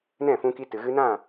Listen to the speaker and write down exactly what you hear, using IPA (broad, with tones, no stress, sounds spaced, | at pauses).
n ɛ̃˦˨ f ũ˧ k i˧ t ɨ˨ ɣ ɨ˧ n ã˦˨